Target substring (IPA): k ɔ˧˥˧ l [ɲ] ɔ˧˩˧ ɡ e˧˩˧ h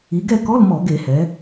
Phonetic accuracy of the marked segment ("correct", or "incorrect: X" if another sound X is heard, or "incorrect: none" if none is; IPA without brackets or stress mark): incorrect: m